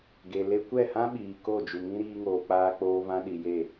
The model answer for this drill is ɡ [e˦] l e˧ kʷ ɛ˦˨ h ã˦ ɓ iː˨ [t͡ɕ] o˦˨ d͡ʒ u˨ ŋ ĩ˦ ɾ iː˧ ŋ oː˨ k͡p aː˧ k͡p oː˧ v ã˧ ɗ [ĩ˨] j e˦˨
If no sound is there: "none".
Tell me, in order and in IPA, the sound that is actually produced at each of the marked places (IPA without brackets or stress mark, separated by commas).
e˨, k, i˨